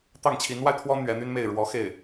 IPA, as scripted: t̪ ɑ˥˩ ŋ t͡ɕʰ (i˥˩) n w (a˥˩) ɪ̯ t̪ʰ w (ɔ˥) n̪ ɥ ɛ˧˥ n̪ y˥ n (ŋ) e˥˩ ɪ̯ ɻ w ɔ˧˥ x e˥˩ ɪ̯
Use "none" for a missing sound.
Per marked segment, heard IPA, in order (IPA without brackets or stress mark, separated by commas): i˧˥, a˧, ɔ˥, m